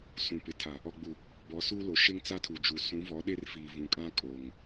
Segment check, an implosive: present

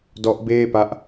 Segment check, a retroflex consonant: absent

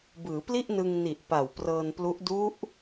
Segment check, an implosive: absent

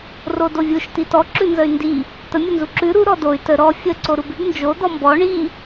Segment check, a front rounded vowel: present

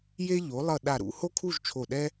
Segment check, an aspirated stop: present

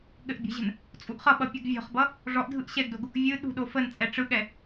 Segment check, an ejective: present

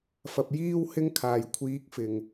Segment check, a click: absent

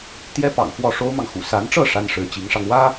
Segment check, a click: absent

